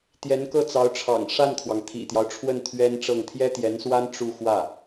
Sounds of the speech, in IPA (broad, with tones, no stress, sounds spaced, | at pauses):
t̪ j ɛ˧˥ n k ɤ˥˩ t͡s ɑ˧˥ ʊ̯ ʈ͡ʂʰ ɑ̰˨˩ ŋ ʂ a˥˩ n kʰ w ɑ˩ ŋ t̪ʰ ḭ˨˩ t̪ j ɑ˦ ʊ̯ ʈ͡ʂʰ w ə˥˩ n t̪ʰ ɥ ɛ˥ n ʈ͡ʂ ɤ˥˩ ŋ t̪ʰ j ɛ˥ t̪ j ɛ˧˥ n s w a˥ n ʈ͡ʂ u˥˧ x w ä˥˩